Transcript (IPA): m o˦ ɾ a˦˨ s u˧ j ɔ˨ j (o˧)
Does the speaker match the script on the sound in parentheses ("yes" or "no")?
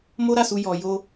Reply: yes